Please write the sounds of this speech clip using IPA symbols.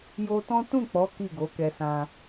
jo˧tɔ̃˦ tũ˦˨k͡pɔ˨˦ ki˦˨ɡo˨˦kɛ˧sã˧

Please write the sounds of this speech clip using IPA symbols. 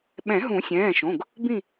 ɓɛ̃˨˩˦ɦũ˨˩˦sʲɛ̃ː˩˧˩ʃõ˩˧˩ɡ | bĩ˦˨

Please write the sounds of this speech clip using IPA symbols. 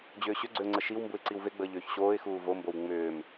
d͡ʑʏːɕʏɡ͡ǀʏʊ̯ŋ͡ǀə ʃiwmbuɪ̯ ǀiwveɡ͡bəː ʎʏːçɕoːɪ̯xuː vombow ŋ͡mʏːm

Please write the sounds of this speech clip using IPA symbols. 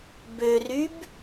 børyb

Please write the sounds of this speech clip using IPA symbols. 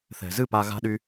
θɛ̤˨zɨ˦˨ pa˧ɣa̤˦ɗy˦

